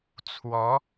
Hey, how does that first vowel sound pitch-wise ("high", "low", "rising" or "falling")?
rising